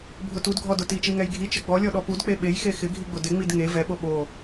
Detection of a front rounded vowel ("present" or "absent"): absent